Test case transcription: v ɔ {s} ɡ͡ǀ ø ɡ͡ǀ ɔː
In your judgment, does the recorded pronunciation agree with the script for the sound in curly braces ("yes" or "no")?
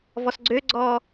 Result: yes